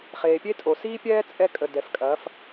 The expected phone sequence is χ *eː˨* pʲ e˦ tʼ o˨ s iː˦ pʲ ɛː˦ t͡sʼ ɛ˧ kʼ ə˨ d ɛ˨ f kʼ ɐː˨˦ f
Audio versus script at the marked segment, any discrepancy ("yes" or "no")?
no